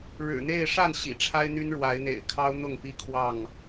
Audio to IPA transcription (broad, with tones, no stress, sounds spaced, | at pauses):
ɻ ɻ̩˨˩ n̪ e˥˨ ɪ̯ ʂ a˥˨ n ɕ ḭ˨˩ ʈ͡ʂʰ a˦ ɪ̯ n̪ y˦ n ɻ w a˨˦ ɪ̯ n̪ ḛ˨˩ ɪ̯ kʰ ɑ˦ ʊ̯ n̪ ʊ˥˨ ŋ p i˦ kʰ w ɑ˥˨ ŋ